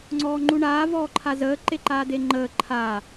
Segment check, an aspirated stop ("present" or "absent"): present